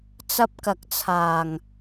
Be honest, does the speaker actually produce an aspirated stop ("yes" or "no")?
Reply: yes